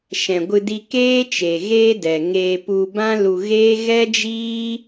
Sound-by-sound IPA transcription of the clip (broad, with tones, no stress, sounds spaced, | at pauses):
ʃ ɛ̃˨ ɡʷ ɨ˧ d i˧ k eː˦ t͡ʃ e˨ ɣ eː˦ d ɛ˨ ŋ eː˧ p u˧ b ã˦ l u˧ ɣ eː˦ ɣ ɛ˦ d͡ʒ iː˦